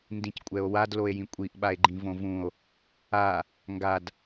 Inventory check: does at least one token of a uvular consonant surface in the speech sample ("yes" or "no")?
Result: no